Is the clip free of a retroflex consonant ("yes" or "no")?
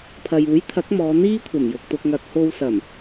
yes